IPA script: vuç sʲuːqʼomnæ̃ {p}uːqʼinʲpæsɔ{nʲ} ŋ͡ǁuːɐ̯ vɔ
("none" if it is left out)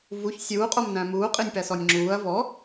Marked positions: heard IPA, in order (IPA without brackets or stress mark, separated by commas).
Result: m, nʲ